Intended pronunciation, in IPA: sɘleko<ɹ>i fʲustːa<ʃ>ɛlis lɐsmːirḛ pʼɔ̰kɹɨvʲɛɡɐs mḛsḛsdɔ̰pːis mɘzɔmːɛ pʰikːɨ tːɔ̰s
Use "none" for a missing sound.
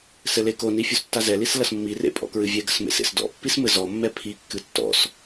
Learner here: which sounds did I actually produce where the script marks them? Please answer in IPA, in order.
n, z

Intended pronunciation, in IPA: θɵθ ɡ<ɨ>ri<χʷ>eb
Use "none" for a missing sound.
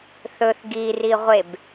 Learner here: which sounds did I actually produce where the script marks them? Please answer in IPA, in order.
i, ʁʷ

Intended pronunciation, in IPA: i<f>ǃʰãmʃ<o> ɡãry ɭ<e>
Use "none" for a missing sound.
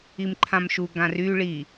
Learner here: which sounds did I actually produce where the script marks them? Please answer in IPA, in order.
m, u, i

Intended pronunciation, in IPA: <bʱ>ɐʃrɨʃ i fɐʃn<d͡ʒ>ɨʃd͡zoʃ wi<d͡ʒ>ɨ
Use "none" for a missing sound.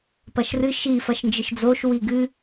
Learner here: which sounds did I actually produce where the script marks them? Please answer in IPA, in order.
p, d͡ʒ, ɡ

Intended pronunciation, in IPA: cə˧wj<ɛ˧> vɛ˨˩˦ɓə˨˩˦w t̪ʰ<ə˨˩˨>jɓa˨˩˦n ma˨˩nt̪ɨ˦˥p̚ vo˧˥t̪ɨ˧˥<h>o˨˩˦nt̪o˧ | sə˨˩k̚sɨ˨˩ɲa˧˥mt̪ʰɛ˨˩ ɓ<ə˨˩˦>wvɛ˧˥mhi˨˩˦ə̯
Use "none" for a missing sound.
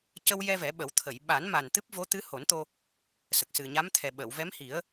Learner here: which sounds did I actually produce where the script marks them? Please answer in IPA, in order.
ɛ˧, ə˨˩˨, h, ə˨˩˨

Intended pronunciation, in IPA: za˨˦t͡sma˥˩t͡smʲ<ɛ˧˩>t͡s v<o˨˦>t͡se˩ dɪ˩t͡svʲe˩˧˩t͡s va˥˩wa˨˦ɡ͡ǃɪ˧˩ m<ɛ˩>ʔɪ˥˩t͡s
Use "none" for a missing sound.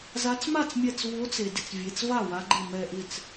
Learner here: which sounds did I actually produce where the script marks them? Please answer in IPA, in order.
ɛ˧˩, o˨˦, ɛ˧˩

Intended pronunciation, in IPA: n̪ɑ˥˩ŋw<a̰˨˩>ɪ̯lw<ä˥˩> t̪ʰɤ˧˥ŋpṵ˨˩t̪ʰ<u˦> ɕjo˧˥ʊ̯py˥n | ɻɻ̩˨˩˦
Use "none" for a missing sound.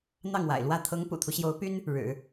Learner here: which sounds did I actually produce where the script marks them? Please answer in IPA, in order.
a̰˨˩, ä˥˩, u˦

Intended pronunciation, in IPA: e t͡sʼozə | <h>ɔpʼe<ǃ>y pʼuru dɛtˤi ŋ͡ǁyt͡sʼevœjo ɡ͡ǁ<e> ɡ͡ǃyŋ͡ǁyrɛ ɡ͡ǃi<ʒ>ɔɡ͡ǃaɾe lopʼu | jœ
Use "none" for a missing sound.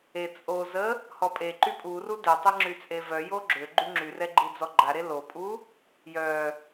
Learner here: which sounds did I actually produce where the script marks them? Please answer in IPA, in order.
h, ǃ, ø, d͡z

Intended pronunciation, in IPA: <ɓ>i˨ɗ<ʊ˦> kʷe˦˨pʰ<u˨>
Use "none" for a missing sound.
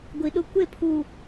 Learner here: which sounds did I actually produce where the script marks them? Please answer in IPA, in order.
ɡʷ, ʊ˦, u˨

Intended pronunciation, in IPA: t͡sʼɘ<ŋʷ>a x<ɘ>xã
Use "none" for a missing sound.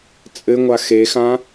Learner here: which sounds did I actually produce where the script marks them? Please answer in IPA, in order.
ŋʷ, e

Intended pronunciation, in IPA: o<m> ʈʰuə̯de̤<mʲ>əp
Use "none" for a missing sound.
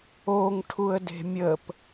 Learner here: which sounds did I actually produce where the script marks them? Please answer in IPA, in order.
ŋ, mʲ

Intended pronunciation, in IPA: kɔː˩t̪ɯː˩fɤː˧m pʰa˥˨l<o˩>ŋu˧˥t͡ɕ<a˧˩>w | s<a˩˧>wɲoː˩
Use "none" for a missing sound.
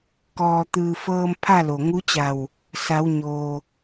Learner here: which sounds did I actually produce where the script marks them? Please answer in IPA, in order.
o˩, a˧˩, a˩˧

